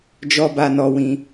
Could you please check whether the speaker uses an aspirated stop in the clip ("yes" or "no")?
no